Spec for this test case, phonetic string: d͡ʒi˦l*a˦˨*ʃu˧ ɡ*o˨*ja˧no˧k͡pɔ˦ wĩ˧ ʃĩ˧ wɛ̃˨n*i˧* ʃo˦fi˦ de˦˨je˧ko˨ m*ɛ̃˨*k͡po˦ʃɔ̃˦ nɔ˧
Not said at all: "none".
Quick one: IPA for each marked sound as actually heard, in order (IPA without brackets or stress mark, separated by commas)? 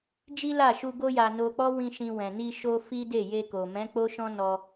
a˦˨, o˦, i˧, ɛ̃˨˦